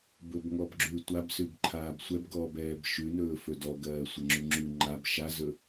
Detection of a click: present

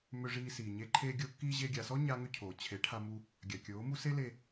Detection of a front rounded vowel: present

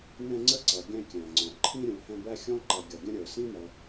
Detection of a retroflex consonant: absent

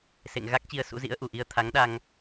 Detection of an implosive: present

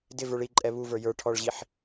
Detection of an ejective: present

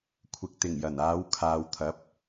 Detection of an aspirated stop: present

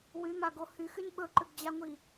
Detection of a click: present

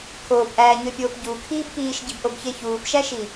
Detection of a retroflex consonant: absent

